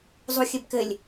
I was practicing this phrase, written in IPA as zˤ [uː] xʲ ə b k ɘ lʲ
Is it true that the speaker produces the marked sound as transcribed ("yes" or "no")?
no